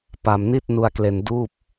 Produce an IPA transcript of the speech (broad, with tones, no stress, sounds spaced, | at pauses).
p a˧ m n i˥˩ t̚ n u˧ a̯ k l e˧ n d uː˥˩ p̚